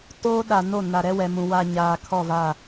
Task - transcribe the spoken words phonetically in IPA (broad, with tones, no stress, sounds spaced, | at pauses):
t oː˦ ɗ a˨ n o˦˨ n a˨ ɾ ɛ˦ w ɛ˨ m ũ˨ w a˨ ɲ aː˨ kʰ ɔ˦˨ v a˦˨